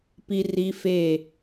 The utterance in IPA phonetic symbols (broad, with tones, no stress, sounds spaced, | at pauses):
p i˦ r i˦ f e˦˨